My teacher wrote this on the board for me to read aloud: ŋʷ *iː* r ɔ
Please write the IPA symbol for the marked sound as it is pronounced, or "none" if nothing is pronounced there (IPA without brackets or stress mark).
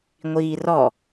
iː